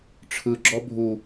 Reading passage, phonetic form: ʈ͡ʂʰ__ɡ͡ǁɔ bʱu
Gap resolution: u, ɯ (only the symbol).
ɯ